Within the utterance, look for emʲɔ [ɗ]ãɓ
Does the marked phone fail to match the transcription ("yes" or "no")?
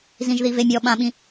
yes